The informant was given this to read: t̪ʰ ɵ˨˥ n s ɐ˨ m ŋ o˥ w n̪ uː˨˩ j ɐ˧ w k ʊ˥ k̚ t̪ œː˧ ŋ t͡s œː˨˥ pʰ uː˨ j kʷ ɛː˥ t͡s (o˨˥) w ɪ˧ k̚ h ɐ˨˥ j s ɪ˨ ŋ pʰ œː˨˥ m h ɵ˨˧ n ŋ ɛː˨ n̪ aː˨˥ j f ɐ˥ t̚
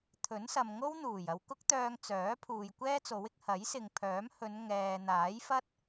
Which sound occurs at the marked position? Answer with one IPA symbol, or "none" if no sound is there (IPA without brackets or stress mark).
o˨˥